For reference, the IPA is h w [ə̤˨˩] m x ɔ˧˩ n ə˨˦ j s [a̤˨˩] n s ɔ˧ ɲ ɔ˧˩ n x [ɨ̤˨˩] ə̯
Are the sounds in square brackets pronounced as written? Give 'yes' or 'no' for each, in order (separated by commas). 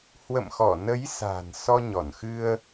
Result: no, yes, no